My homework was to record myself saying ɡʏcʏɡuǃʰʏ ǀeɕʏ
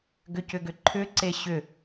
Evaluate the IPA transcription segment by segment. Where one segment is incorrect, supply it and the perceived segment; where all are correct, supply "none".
u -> ʏ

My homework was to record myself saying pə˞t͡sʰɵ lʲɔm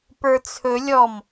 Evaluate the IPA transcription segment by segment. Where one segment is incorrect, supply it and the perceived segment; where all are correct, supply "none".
none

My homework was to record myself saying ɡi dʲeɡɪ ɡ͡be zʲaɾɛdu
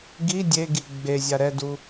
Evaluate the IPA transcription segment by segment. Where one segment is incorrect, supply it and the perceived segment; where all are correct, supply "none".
ɪ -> i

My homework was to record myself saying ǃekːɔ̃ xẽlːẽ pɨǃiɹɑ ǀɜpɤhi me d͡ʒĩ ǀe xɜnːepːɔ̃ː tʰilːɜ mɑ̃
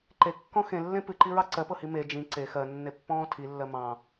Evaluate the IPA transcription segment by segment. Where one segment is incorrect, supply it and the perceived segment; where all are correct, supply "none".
none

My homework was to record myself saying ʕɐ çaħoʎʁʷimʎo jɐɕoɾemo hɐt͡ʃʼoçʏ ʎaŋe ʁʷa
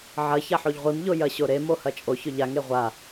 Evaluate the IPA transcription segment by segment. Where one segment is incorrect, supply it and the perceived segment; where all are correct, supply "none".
none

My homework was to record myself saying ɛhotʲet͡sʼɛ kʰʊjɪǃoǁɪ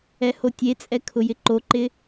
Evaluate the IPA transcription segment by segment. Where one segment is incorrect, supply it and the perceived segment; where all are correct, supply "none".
ǁ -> ǃ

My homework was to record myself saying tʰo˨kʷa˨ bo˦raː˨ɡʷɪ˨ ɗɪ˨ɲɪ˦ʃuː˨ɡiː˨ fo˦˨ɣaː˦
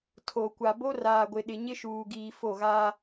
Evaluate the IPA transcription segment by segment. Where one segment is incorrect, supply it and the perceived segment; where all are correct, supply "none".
none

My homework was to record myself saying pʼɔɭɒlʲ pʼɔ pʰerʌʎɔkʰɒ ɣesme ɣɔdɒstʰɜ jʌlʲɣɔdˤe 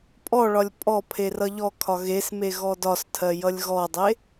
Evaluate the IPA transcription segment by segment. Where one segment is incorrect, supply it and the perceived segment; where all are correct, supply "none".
none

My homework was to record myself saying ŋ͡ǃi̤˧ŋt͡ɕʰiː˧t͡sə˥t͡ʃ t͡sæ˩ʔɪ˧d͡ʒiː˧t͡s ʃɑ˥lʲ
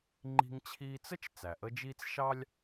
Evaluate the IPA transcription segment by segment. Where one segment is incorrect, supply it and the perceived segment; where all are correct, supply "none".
ɪ˧ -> ə˧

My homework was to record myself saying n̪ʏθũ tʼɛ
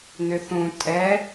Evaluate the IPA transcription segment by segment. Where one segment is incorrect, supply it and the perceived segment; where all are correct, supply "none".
none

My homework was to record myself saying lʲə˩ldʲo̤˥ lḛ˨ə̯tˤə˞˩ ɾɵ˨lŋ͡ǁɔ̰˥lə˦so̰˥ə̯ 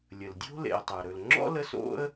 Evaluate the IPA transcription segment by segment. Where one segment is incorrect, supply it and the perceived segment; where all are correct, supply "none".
none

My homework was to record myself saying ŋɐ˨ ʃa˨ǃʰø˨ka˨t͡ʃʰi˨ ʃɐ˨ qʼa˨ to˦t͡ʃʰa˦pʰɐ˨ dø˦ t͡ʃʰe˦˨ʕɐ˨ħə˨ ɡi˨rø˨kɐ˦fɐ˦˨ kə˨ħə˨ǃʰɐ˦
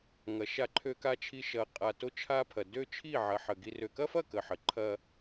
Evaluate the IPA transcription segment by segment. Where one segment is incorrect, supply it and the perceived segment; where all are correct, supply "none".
e˦˨ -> i˦˨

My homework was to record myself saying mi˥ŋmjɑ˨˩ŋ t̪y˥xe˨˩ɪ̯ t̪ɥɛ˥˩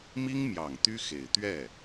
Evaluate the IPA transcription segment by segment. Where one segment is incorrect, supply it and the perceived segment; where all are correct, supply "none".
none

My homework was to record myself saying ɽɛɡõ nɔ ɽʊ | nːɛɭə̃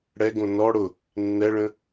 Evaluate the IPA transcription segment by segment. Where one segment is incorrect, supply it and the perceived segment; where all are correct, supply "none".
none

